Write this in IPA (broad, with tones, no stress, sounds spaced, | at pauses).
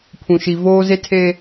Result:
pʰ ũ˨ ʃ i˨ v oː˦ z e˦ tʰ eː˦